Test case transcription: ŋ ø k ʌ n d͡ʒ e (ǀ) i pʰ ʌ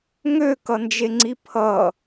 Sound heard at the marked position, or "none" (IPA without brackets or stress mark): ŋ͡ǀ